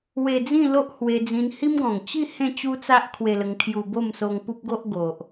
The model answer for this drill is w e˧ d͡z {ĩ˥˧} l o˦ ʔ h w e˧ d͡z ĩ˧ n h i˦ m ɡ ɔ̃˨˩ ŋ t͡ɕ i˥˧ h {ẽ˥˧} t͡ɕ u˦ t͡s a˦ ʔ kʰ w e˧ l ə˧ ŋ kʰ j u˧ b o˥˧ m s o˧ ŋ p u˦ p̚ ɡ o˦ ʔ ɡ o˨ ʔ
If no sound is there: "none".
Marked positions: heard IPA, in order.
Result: ĩ˥˧, ẽ˥˧

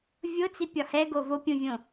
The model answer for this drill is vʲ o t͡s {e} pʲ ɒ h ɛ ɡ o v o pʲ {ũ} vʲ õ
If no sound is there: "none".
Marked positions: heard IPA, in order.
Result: i, ũ

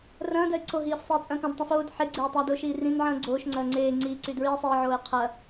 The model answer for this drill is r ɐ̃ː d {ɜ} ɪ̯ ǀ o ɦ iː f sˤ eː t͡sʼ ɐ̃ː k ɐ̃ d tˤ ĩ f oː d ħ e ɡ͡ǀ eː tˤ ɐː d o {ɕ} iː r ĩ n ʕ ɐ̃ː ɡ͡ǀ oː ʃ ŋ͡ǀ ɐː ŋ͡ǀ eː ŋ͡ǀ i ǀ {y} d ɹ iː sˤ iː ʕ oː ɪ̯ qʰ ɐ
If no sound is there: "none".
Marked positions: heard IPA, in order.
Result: ɜ, ʃ, y

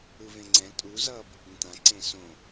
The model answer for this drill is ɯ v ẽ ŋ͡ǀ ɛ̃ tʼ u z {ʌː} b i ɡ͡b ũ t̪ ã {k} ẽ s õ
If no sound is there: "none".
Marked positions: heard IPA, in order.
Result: ʌː, ǀ

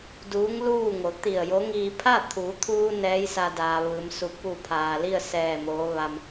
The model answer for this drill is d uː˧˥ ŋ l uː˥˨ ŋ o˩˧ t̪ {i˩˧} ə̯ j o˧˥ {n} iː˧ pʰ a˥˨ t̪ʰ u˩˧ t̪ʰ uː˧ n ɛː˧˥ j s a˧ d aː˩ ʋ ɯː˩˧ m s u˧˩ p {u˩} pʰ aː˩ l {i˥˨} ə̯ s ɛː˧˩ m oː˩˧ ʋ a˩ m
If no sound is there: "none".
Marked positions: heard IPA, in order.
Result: i˧˩, ŋ, u˧˩, i˥˨

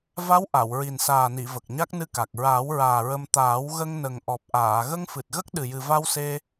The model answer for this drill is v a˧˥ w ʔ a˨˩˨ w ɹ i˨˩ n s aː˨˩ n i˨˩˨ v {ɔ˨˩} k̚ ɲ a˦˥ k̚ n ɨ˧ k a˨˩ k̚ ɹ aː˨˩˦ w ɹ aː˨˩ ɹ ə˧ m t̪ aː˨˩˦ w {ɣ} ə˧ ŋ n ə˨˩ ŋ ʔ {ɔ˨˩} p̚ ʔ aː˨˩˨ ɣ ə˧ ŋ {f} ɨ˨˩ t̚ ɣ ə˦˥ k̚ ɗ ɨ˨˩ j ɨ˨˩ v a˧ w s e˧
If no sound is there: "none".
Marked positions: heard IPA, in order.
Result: ə˨˩, ɣ, ɔ˨˩, f

